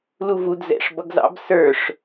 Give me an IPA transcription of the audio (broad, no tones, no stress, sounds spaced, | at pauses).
l u v u d z ɛ̰ ʂ b ʌ ɡ z ɑ̰ b s ə˞ ʂ